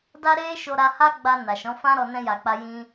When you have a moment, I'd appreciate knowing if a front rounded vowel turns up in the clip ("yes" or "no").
no